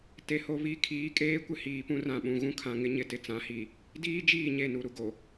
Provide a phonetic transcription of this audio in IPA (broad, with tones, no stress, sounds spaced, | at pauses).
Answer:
t e˨ h o˨ β i˨˦ kʰ iː˨˦ kʼ eː˦ kʷ ɪ˦ h iː˨ p ũ˦ r ã˦˨ ɓ ũ˨ ɣ ũ˦ kʰ ã˨ ŋ ɪ˦ ɲ ɪ˨ t ɪ˨ t͡s ã˨˦ h i˨ | d iː˦ d͡ʒ iː˦˨ ɲ e˦˨ n u˨ ɾ u˨ ɡ o˨